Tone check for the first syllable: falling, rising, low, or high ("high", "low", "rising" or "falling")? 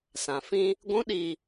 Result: low